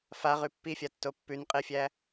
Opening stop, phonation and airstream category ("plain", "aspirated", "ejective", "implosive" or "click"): plain